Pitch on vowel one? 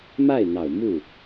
falling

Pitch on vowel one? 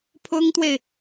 high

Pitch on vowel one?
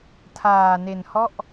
low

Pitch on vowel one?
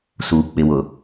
low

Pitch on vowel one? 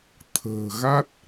low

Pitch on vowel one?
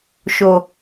low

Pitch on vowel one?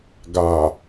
low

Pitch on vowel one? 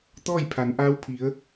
falling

